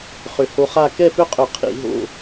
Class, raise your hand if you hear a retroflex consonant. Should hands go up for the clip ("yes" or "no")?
no